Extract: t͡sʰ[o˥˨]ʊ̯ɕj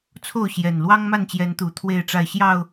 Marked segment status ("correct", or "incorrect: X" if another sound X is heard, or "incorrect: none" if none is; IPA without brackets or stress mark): correct